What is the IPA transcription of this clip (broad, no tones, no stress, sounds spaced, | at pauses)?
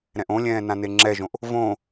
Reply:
ɾ ɛ̃ ʔ õ lʲ ɛ̃ː n ã n e ŋ͡ǁ ɛ ʒ õ ʔ | v õː